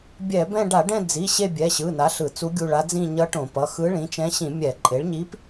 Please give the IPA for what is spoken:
bʲ ɛ˧˩˧ b ɛ̃˦˨ ɖ a˧˩˧ ɖ ɛ̃˦˨ d͡z i˩˧˩ ɕ e˦˨ bʲ ɛ˩˧˩ ɕ ɯ˩˧˩ n a˩˥ ɬ ɯ˧˩˧ t͡s u˧˥ ɡʲ u˦˨ ɭ a˧˥ d͡z ĩ˦˨ ɲ ʌ˧˥ ʈ õ˧˩˧ p ʌ˩˧˩ x ɯ˧˥ ɭ ĩ˩˥ t͡ʃ ɛ̃˧˥ ɕ ĩ˧˩˧ mʲ ɛ˧˩˧ ǃʼ e˩˥ ɭ ɲ i˧˥ p

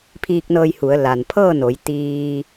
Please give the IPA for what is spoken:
pʰ iː˧ k̚ n ɤː˧ j h u˩˧ ə̯ l a˩ n pʰ ɤː˥˨ n o˩˧ j t̪ iː˧

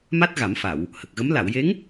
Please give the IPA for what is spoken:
m a˦˥ t̚ ɣ a˨˩˦ m f a˨˩˨ w | h ə˨˩ k̚ ɣ ə˧˥ m l a˨˩˨ w j e˧˥ ŋ

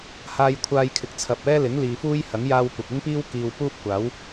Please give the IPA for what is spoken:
h aː˧ j kʷʰ aː˧ j kʰ ɪ˨ k̚ t͡sʰ ɐ˨ p̚ ɛː˥ l ɪ˨˥ ŋ l iː˨ f uː˥ j h ɐ˨˥ ŋ j aː˧ w kʷ ɐ˨ k̚ ɪ˥ ŋ p iː˥ w k iː˧ w p uː˥ p̚ kʷ aː˨˥ w

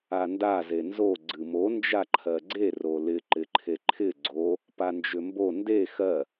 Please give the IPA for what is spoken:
a n d a z e n z o ɡ͡ǀ ɨ m o n d͡ʒ a ǃʰ ɜ ɡ͡ǀ e r o l ɪ ǃ ɪ ǃʰ e ǃʰ ɪ ɡ͡ǀ o | p a n d͡ʒ ʏ m b o n d e x ɜ

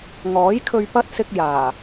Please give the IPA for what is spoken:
ŋ ɔː˨˥ j kʰ ɵ˧ ɥ p ɐ˥ t̚ s ɪ˧ k̚ j aː˨˩

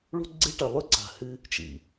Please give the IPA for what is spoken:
ɭ ṳ˦ ɡ͡ǀ e˦ ʈ ɐ˨ lˠ ʉ˦ ǀ a̤˨ h ɨ˦ | t͡ʃ ḭ˨

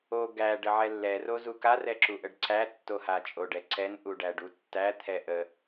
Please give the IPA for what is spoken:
o ɡ æ ɖ ə ʕ ɛ lː ɛ r o z u k a r ɛ ǁ u ʔ ə ɖ ǀ æ tː o h a t͡ʃʼ o ɖ ɛ ǀ ɛ n ʔ u ɖ æ ɖ u tː æ t̪ʰ ɛ ʔ ə

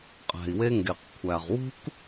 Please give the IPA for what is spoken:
qʼ æ̤˩ i̯ w e˧ ŋ ɡ e˩ q kʷʰ æ˩ ʁ w ṳ˥ k

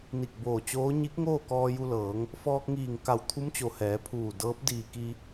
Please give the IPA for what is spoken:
n i˧˩ k̚ b oː˧˩ t͡ɕ oː˧˥ ɲ i˧˥ k̚ ŋ oː˥˨ k ɔː˧ j u˧ l ɤː˩˧ ŋ | f ɔː˧ k̚ ŋ iː˧˩ ŋ k a˧˩ w t̪ʰ u˧˥ m t͡ɕ o˩ h ɛː˩˧ pʰ uː˧˩ d ɤː˧˥ p̚ d iː˧˩ k i˧

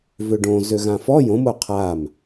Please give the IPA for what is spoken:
v ø ɖ õ z ø ɣ ã f ɔ j õ m o qʰ a m

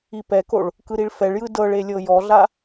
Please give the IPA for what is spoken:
i p ɛ k o ɭ | k ɯ ɾ i ɭ f ɛ ɭ j ɯ d ɤ ɭ e lʲ ɤ j ɔ ɮ a

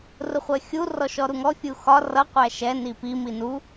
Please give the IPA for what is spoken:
r ʊ χʷ ɜ xʲ u r ɔ ʃ ɔ ɾ u ŋ ɔ fʲ u x ɒ r ʌ qʷ æ ʃ ɛ n i p i m i n u

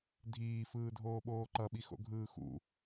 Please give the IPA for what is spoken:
dʱ iː f ɯː dʱ oː ɓ oː ǃ ʌ ɓ i x o̰ ɡʱ ɯː x ṵ

